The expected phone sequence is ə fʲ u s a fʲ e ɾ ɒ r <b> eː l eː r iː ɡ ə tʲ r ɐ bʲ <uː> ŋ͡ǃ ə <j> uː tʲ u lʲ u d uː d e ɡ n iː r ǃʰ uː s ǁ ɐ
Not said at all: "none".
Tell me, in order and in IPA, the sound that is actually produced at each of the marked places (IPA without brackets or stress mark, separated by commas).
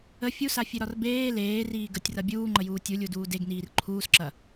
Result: b, uː, j